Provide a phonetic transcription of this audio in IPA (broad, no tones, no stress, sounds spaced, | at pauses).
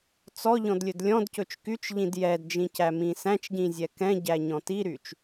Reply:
t͡s ɔ ʎ ɔ̃ d lʲ ɵ d lʲ ɔ̃ d c ɵ t͡ʃ k y t͡ʃ ʎ ĩ d j ɛ d d͡ʒ ĩ c æ m ĩ s æ̃ t͡ʃ ɟ ĩ zʲ ɛ k ɛ̃ ɟ æ ɲ ɔ̃ t i ɾ y t͡ʃ